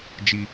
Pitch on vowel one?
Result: high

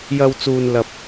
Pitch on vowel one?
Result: low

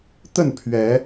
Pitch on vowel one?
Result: falling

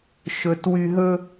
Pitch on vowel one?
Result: low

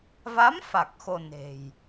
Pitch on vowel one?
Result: rising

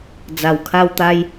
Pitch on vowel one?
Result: low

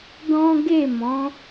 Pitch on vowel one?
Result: high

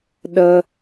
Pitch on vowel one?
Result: high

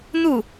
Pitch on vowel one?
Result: falling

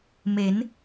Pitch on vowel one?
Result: rising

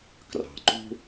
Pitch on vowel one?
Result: low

